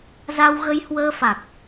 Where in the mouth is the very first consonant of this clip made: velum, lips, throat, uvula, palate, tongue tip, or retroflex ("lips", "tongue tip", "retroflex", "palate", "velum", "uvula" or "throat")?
tongue tip